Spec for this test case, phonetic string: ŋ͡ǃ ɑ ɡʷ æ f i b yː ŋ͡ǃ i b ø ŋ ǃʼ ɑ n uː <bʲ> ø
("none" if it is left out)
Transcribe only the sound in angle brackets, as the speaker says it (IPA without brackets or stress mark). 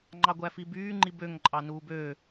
b